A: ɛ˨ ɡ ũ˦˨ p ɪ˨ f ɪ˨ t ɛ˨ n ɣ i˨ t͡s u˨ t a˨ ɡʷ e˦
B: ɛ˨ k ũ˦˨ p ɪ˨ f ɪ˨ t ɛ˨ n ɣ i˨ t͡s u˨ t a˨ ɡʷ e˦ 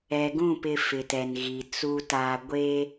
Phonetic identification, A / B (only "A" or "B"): A